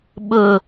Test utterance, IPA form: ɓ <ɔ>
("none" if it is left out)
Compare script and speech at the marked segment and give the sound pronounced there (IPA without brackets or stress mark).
ʊ